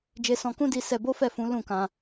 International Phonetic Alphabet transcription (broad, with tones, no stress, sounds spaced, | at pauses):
d͡ʒ e˧ s ɔ̃˧ k ũ˦ d i˧ s ɛ˧ b o˦ f ɛ˦˨ f ũ˨˦ l ũ˦˨ k ã˧